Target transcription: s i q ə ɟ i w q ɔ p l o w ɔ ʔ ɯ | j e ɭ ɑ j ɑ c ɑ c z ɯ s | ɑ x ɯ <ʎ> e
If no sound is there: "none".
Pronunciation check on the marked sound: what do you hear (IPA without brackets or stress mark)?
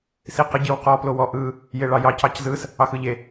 ʎ